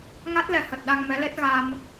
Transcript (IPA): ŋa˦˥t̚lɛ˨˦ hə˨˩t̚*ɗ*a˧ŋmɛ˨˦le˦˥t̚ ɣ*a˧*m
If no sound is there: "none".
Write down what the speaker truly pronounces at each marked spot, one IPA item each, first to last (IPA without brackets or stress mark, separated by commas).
ɗ, a˧